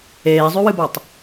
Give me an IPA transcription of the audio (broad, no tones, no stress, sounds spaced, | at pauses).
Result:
eː zˤ ʉ w ɨ b a tˤ